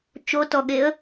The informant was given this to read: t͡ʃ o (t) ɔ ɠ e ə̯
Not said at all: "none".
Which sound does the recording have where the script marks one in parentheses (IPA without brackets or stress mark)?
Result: t